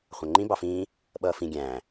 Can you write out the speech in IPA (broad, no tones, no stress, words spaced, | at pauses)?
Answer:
χʷæ̃ŋ͡ǃĩ bɑfĩː | ɓʌːfĩ ɡʲæ̃ː